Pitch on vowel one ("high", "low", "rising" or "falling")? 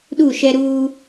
falling